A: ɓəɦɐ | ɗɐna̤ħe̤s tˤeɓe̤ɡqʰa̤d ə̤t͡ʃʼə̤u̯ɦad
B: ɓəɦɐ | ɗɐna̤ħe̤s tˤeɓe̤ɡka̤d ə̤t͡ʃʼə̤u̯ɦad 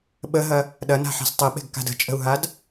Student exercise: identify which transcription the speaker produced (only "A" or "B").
B